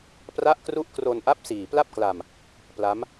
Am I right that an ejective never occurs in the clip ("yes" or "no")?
yes